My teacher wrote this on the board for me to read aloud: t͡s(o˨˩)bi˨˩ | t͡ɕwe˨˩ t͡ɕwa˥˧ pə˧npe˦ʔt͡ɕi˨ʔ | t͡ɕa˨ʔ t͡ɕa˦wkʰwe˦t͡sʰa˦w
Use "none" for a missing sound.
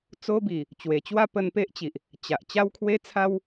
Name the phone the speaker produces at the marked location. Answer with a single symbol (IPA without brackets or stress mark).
o˦